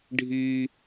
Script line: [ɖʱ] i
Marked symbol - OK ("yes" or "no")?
yes